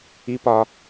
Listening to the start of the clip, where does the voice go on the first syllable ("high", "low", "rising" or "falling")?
rising